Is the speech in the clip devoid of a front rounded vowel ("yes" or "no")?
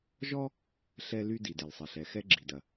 no